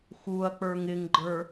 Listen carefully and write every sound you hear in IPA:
x u ɐ̯ k͡p ə˞ ŋ ɪ ŋ ɡ͡ǃ ə˞

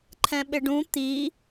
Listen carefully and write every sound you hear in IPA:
ǃʰ ɛ̃ ɓ ɪ ɖ ũ t̪ i

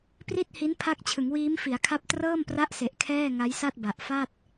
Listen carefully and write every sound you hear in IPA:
p r i˥˩ t̚ h i˦˥ n pʰ a˦˥ k̚ t͡ɕʰ ɯ˩˦ ŋ w iː˦˥ m f i˩˦ a̯ kʰ a˦˥ p̚ t r ɤː˥˩ m p r a˦˥ ʔ s e˨˩ ʔ kʰ ɛː˥˩ ŋ a˦˥ j s a˥˩ t̚ b a˨˩ ʔ f a˥˩ t̚

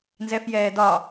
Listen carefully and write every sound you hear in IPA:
n z ɛ f j ɛː d ɒ

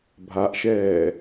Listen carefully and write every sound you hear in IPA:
bʱ a ʔ ʃ ɛː

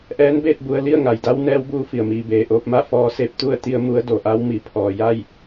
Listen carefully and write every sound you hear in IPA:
ʔ ɛː˧˥ n b eː˥˨ t̚ b u˧ ə̯ l i˥˨ ə̯ ŋ a˩ j d a˧˥ w n ɛː˧˥ w b uː˧˥ f i˩ ə̯ m iː˩ b eː˩ ʔ oː˧ p̚ m a˥˨ f ɔː˧ s e˥˨ p̚ t̪ u˥˨ ə̯ t̪ i˧ ə̯ m u˧˥ ə̯ d o˩ ʔ a˧˥ w m i˩ pʰ ɔː˩ j a˥˨ j

